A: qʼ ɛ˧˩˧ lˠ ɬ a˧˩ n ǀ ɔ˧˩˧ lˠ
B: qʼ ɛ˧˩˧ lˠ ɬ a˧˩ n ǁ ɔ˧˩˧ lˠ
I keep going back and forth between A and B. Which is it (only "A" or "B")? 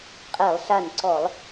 A